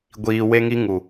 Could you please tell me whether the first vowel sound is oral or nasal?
oral